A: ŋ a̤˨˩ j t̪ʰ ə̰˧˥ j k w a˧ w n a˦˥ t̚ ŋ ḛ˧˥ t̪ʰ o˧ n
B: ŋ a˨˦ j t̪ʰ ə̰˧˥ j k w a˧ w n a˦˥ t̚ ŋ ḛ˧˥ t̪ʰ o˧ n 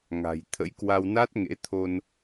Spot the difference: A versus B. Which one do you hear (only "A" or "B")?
A